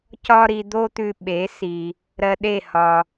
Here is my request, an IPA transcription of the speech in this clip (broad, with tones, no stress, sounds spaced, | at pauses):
c ɒ˥ ɾ i˧ d̪ o˥ t̪ ʉ˧ ɓ e˩˥ s i˩ | ɾ ɜ˧ ɗ e˥˩ h ɒ˩